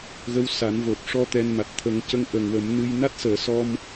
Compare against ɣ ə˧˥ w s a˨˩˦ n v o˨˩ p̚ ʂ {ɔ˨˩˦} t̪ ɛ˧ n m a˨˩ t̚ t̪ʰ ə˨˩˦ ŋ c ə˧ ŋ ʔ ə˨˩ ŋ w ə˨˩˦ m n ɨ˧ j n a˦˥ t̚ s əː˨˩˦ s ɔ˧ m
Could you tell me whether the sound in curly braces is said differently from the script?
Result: yes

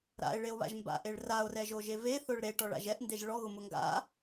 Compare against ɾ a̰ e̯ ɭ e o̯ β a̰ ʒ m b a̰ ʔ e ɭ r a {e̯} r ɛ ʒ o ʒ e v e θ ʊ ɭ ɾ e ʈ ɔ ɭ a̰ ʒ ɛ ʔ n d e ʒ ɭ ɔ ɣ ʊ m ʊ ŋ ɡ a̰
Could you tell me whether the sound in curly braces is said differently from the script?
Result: yes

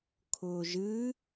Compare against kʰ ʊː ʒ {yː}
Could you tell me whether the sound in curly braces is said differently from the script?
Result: yes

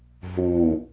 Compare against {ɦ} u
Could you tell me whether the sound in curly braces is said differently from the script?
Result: no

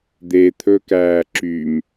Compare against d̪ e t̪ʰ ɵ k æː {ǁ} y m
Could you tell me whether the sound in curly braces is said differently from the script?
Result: no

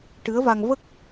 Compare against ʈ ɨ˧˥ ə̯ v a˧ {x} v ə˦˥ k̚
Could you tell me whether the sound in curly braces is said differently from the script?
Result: yes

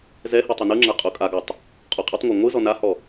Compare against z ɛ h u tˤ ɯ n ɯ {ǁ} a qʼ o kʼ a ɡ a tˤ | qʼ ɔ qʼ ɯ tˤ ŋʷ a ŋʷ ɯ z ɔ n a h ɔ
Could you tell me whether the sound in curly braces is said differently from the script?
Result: yes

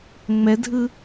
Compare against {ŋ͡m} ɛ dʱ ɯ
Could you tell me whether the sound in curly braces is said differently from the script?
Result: no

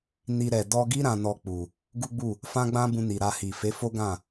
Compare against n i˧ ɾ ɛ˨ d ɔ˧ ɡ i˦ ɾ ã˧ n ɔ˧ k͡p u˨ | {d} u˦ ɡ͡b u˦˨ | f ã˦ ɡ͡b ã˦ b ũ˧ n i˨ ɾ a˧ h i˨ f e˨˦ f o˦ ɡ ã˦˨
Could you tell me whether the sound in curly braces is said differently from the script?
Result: yes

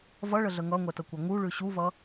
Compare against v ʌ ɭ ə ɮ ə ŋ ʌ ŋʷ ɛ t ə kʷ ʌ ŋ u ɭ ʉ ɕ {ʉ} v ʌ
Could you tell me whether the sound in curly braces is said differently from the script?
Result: yes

